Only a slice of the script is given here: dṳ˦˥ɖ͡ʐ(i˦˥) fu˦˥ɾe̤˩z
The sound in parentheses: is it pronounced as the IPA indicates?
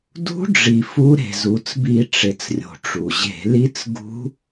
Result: no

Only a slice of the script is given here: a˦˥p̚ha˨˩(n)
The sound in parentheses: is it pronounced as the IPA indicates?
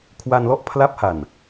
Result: yes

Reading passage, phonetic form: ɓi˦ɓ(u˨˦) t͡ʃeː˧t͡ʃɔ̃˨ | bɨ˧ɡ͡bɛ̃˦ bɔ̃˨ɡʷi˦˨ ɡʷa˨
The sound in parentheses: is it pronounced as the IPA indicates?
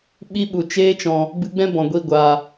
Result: no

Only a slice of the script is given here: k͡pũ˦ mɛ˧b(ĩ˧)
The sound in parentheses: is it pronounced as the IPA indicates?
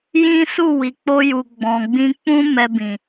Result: no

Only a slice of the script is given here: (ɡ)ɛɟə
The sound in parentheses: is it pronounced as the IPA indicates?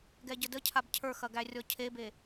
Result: yes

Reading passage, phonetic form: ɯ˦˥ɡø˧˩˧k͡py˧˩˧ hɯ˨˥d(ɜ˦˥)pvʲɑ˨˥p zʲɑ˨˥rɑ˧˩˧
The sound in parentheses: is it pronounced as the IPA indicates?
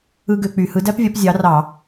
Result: no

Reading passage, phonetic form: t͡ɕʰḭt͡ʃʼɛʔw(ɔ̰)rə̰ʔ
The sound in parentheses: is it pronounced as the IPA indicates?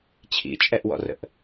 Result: yes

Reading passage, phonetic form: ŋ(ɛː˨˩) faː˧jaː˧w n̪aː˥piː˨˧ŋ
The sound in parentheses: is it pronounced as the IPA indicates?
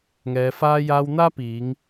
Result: no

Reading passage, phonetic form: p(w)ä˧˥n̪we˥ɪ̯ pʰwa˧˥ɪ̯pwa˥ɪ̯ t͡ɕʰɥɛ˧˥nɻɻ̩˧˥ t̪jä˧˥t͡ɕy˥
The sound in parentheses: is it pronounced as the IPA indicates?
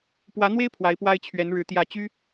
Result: yes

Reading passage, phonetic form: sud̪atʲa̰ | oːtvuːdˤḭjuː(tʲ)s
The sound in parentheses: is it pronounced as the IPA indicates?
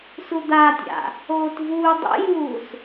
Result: no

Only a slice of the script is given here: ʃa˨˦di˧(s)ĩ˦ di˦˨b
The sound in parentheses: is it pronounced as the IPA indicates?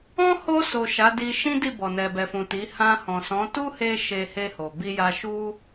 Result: no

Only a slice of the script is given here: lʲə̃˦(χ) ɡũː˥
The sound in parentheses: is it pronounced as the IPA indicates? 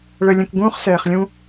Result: no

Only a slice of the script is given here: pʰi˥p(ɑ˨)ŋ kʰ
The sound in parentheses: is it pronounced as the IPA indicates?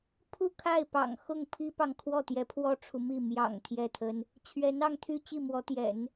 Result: yes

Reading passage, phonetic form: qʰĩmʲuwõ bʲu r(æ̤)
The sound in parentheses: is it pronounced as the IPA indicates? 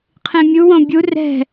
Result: no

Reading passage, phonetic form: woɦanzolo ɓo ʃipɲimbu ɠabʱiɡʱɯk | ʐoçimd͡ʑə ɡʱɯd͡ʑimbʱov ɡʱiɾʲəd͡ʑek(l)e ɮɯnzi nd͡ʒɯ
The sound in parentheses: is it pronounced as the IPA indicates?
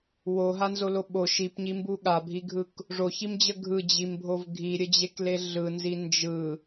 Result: yes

